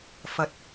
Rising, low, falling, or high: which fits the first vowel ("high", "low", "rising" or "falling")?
low